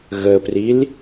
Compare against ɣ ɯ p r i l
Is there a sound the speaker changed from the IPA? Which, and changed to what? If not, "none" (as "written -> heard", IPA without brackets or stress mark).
ɯ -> ə